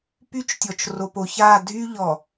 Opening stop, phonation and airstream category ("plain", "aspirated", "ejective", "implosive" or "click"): plain